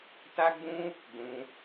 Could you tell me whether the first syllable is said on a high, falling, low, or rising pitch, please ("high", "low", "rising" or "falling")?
high